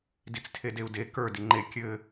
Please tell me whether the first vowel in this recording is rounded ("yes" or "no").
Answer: no